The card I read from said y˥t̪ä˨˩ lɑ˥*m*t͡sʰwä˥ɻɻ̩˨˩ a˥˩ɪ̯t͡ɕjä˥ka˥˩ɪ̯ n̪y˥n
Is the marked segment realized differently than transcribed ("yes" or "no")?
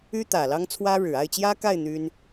yes